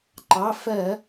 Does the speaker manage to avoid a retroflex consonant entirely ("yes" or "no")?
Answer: yes